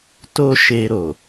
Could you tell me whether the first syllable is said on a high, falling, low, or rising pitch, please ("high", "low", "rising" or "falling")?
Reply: high